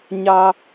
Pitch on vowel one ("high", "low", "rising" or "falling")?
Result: high